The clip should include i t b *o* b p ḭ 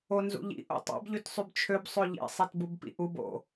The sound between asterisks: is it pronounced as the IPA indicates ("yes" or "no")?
no